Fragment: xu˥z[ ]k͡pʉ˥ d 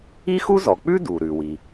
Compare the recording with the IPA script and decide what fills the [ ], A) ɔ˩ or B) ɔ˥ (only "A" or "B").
A